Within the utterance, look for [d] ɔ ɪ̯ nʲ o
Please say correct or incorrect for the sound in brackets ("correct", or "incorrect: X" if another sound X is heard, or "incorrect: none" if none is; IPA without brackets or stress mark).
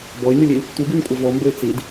incorrect: b